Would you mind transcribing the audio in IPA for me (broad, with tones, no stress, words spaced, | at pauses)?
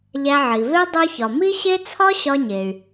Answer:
ʎæ˧ʕi˩ve˥ dˤu˥ çɒ˩mi˥ɕe˥ t͡sʰɒ˥ɕɒ˧ɲe˩y̯